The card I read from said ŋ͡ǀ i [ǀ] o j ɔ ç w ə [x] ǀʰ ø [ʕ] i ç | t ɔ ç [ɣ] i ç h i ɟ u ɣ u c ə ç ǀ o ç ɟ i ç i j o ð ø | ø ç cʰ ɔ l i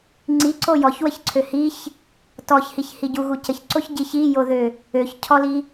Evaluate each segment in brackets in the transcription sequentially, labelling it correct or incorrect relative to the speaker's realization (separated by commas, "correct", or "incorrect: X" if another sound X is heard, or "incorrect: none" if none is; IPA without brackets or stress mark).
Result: correct, incorrect: ç, incorrect: h, incorrect: h